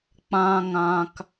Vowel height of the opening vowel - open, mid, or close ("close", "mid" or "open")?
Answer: open